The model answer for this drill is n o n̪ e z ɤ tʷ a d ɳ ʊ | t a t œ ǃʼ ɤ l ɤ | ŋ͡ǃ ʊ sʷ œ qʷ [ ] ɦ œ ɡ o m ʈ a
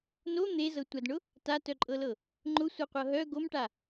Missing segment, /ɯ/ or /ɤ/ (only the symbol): ɤ